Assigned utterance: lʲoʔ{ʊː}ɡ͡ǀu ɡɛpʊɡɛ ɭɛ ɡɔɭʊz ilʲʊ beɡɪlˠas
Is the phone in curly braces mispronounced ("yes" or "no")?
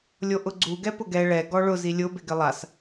yes